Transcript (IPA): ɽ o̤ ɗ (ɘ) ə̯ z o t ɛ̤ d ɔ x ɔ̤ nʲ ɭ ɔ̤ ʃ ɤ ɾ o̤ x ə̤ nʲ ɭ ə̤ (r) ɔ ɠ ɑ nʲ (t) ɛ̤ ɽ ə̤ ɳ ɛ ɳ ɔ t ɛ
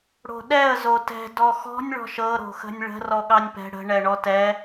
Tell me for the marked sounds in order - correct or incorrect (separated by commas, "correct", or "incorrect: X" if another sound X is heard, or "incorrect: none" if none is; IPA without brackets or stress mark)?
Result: incorrect: ɛ, correct, incorrect: p